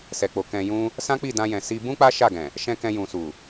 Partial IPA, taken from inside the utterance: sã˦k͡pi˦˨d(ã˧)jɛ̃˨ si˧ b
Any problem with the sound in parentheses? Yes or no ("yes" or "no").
no